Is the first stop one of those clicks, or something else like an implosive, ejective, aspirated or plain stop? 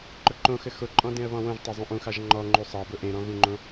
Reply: click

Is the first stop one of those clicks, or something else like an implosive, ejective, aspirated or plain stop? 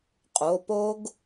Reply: ejective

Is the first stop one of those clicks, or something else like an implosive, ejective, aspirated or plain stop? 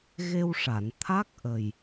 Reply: aspirated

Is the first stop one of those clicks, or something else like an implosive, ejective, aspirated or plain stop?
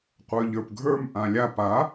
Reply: plain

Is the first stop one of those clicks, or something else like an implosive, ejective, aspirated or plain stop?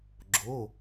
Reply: click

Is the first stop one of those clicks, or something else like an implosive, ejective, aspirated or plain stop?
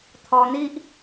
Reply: aspirated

